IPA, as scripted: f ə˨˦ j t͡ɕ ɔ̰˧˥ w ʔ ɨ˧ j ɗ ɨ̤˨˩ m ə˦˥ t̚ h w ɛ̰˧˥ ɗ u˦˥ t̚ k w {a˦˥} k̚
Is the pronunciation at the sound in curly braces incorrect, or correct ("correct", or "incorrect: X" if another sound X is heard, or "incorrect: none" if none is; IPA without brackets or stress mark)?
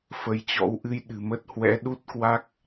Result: correct